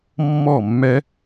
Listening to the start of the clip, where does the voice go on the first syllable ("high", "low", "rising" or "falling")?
falling